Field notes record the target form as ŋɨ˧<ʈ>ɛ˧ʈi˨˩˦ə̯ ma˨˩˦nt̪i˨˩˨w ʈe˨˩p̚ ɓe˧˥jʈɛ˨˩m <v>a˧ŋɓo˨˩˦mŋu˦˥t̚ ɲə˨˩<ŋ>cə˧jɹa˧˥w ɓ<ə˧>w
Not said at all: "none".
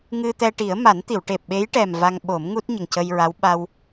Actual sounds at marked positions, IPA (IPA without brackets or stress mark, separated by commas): t̪, v, ŋ, a˧